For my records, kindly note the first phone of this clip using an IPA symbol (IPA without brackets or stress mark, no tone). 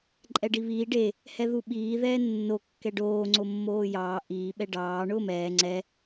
ǃʼ